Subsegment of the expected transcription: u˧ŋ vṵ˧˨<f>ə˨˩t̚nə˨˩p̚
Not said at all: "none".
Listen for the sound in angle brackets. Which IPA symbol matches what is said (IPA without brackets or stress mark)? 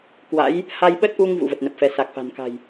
v